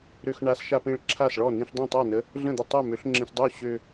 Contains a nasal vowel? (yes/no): yes